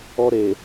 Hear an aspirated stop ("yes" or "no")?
no